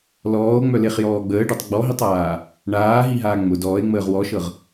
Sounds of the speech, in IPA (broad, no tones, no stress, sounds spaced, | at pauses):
l ɔː o̯ ŋ͡m œ l e χ j ɔː ɡ͡b əː ɖ œ tˤ ɡ͡b ɔ ɦ i tˤ aː | ɳ aː ɦ i ɦ aː ŋ͡m ʊ d ɔː e̯ ŋ͡m əː ʁ w ɔ ʃ ɤ ʁ